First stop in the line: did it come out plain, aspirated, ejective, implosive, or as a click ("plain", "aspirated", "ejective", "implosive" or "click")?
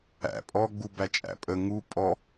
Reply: ejective